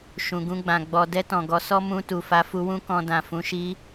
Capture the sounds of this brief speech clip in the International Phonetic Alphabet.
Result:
ʃ ũ˨ ɡ ũ˧ ɡ͡b ã˨ ɡ͡b ɔ˨ d ɛ˧ t ɔ̃˨ ɡ ɔ˨˦ s ɔ˦ m ũ˧ t u˨ f a˧ f u˧ w ũ˦ k ɔ̃˧ d ã˨ f ũ˨˦ ʃ i˦

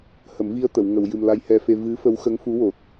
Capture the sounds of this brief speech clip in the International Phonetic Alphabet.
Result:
h ə˨˩˦ m v i˧ ə̯ t̪ ə˨˩˨ w ŋ ə˨˩˨ w j ɨ˨˩ m l a˧ j h ɛ˧ f e˧ v ɨ˧˥ f ə˧˥ w x ə˧˥ ŋ f u˧˥ w o˨˩ t̚

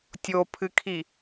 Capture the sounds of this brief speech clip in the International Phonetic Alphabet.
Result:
tʲ o pʰ ɨ kʰ i

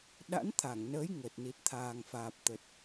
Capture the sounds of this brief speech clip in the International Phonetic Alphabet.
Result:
ɗ a̰˧˥ n t̪ʰ a˧˩ ŋ n əː˨˦ j ŋ əː˨˩ t̚ n i˨˩ t̚ t̪ʰ aː˨˩ ŋ f aː˨˩ p̚ t̪ ə˨˩ t̚

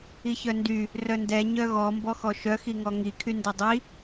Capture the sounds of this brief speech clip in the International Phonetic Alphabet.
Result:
i ç œ n d y | r œ n d ɛ ɲ œ ɣ ɔ m b ɔ x ɔ ʃ œ x i ŋ ɔ ŋ i kʰ y n d ɛ dˤ i

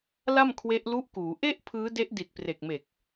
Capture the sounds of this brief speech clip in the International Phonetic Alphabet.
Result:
l a˥˩ m kʰ w e˦˥ ʔ l u˦˥ ʔ k uː˩˦ ʔ e˥˩ ʔ pʰ ɯː˦˥ d e˦˥ ʔ d i˨˩ t̚ p r e˨˩ k̚ m e˨˩ k̚

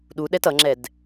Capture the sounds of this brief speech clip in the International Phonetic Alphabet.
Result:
ɗ u ɗ ɛ t ʌ ŋ͡ǁ ɛ d

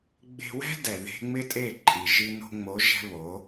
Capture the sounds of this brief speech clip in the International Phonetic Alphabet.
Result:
ɡ͡b e̤˧ w ɛ̤˦ d ɛ˨ ð e̤˦ ŋ͡m ɪ˦ tʼ e˦˨ ǃʼ i˨ ʒ i˧ n o̤˧ ŋ͡m o˨˦ ʒ ɛ̤˦ β o˨˦

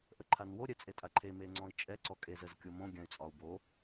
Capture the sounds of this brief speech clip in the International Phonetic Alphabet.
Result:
ʔ ə ǃʰ a n w o ɾʲ ɛ t͡sʼ e tʼ a ǃʰ e m e ŋ͡ǀ ɔ̃ i̯ t͡ʃʼ ɛ ǀ ɔ kʼ e z ə z kʲ o m õ ɡʲ ã y̯ t͡sʼ ɒ u̯ b o

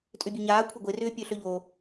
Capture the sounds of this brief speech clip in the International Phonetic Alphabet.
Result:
tʼ ʏ bʲ ø ɲ aː kʷʰ e ɡʷ e r ʏː pʲ ø ɬ ø ʎ o

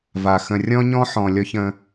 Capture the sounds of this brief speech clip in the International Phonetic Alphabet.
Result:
v a˨ x ə̃˨ rʲ ɔ̃˦ ɲ ɔ̃˦ ħ ɔ̃˨ lʲ ɔ˦ ç ə̃˦

